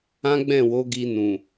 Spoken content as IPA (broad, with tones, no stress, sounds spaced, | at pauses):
ã˦ ɡ͡b ɛ̃˦˨ w o˨˦ ɡ i˧ n ũ˨